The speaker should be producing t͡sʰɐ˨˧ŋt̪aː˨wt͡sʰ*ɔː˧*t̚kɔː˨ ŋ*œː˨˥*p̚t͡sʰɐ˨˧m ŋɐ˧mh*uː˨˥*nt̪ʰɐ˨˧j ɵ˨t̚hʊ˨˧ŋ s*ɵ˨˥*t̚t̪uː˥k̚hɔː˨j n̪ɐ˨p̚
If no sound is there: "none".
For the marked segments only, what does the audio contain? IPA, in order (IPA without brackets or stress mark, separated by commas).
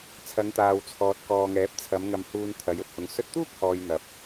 ɔː˨, ɛː˨˥, uː˧, ɵ˧